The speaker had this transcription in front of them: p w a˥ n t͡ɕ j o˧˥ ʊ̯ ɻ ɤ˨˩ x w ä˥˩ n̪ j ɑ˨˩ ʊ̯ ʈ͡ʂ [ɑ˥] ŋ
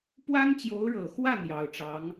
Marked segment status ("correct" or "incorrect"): incorrect